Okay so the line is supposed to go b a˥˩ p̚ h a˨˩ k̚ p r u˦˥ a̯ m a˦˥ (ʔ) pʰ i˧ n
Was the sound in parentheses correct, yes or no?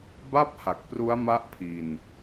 yes